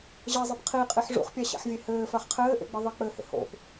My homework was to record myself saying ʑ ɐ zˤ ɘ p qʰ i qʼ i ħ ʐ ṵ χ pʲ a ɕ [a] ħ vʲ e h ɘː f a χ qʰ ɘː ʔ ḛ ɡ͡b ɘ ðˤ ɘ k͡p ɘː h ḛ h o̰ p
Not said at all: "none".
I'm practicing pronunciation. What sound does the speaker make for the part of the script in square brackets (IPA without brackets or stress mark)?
a̰